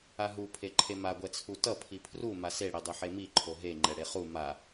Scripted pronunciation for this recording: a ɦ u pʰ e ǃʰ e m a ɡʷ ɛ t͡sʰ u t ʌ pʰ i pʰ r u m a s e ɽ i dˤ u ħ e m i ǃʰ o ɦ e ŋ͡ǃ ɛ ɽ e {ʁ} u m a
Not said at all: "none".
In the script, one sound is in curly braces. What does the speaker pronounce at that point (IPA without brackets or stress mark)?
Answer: χ